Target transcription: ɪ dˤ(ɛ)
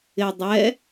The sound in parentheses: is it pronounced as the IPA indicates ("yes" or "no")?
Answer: yes